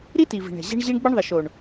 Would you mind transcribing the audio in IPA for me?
ɾ i˦ t i˨ v i̤˨ ɳ ɛ̤˨ ʑ ɛ̤˦ ɳ ʑ i˦ ɳ ɡ͡b ɘ˦ ɳ ðˤ ɪ˨ ʃ o˨ ɳ

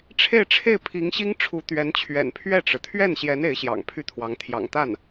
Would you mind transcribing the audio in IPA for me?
ʈ͡ʂʰ e˥˧ ɪ̯ ʈ͡ʂʰ e˥˩ ɪ̯ pʰ i˧˥ ŋ ɕ i˥ ŋ ʈ͡ʂʰ u˧˥ t̪ ɥ ɛ˧˥ n t͡ɕʰ ɥ ɛ̰˨˩ n pʰ ɥ ɛ˥˩ ʈ͡ʂ ɻ̩˩ t̪ʰ ɥ ɛ˥˩ n ɕ j ɛ˧˥ n e˧˥ ɪ̯ ɕ j ɑ̰˨˩ ŋ pʰ y˥˩ t̪ʰ w ɑ˧˥ ŋ t̪ʰ j ɑ̰˨˩ ŋ t̪ a˥˩ n

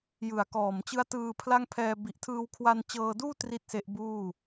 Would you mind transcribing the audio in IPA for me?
j ɯ˨˩ a̯ k ɔː˨˩ m t͡ɕ ɯ˦˥ a̯ t ɯː˧ pʰ l a˥˩ ŋ pʰ ɛː˧ b i˨˩ ʔ tʰ ɯː˧ w kʰ w a˧ n t͡ɕ ɤː˧ d uː˥˩ t r i˥˩ t̚ s e˦˥ ʔ b uː˥˩

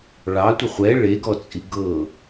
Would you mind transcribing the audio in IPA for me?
ɭ ɑ tʷ ə χʷ ɛ ɭ e ɡ ɔ t͡sʼ i ɡ ɤ

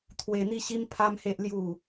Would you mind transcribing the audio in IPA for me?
t̪ʰ w e˧ n̪ i˥˧ ɕ i˦ m pʰ a˦ m h e˦ ʔ l j u˥˧

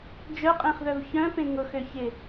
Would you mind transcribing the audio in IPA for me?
d͡ʒ œ qʼ ẽ χ ð œ v ç œ̃ p ẽ ŋ ʊ x ø ç ɪ

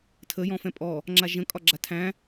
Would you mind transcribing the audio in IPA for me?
tʰ ə j ɔ̃ f ɛ̃ pʼ ɔ | ŋ͡ǁ a ʒ ə̃ kʼ ɒ ɡ͡ǁ a tʰ æ̃

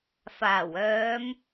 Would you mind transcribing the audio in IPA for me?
f aː˨˩ w œː˨˧ m

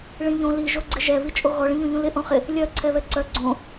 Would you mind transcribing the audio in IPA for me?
ɭ ĩ ʎ õ l i ʒ o ɡ͡ǀ ɪ ʒ ɛ β i t͡ʃʼ o ɣ ɔ ɭ ĩ ʎ õ ʎ ũ l ɪ ʔ õ χ ɪ | lʲ œ ǀʰ ɛ β ɛ ǀ œ ɡ͡ǀ õ

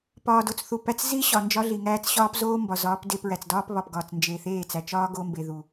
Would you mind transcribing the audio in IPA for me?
p ɒː˨ d o˨ t͡s θ u˨ p æ˨ t͡s z i˦ ɕ ɒ˨ n d͡ʒ ɒ˦ ɮ i˨ ŋ æː˦ t͡s ɕ ɒː˦ p z oː˦ m b ɒ˨ z ɒː˨˦ p d e˦˨ p ɹ æ˨ t͡s d ɒː˦ p β ɒ˨ p ɡ ɒː˨ t͡s n d͡ʒ e˨ θ eː˦˨ t͡s æ˨ t͡ʃ ɒː˦ ɡ o˦ m b e˨ ð u˨

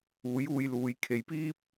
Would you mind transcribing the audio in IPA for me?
uː˨˥ j uː˧ j l uː˨˧ j kʰ e˨˧ j p iː˥ p̚

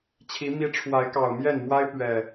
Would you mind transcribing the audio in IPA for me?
t͡ɕʰ i˨˦ m i˨˦ ʈ͡ʂʰ w a˨˦ ɪ̯ k ɑ˨˩ ʊ̯ m j ɛ˥˨ n m w a˦ ɪ̯ p ɥ ɛ˨˩

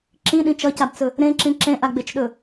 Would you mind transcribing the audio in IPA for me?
ǁ ĩ ɗ ĩ t͡ʃ ʌ c a b t͡s ɵ | ɾ ẽ ǁ ĩ ǁ ẽ ʔ a ɡ͡b e t͡ʃ ɗ ɵ

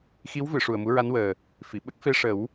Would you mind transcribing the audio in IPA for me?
x i˧˥ w v ɨ˨˩˨ ʂ u˨˩ ə̯ m u˧˥ ɹ a˧˥ n w əː˨˩ | f i˨˩˨ ɓ ə˦˥ k̚ f e˧ ʂ ə˨˩˦ w

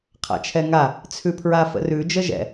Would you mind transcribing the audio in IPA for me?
qʰ a̰ t͡ʃʰ ɛ ŋ a | t͡sʰ ʉ pʰ ɹ a f ə̰ r ʉ d͡ʒ ə ʒ ɛ̰

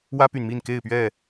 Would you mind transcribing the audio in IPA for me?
w ä˦ p y˨ n m i˥˨ n k e˥˨ ɪ̯ p ɥ ɛ˥˨

